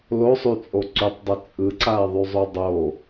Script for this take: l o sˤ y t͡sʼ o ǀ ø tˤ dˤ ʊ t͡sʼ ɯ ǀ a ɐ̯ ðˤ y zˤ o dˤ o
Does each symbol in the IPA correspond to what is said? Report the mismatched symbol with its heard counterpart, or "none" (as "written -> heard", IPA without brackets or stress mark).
ø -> y